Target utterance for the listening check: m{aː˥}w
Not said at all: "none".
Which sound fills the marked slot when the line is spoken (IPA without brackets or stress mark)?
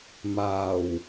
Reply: aː˨˩